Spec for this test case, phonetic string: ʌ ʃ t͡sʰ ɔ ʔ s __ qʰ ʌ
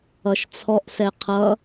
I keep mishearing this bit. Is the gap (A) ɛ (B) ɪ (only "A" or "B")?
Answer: A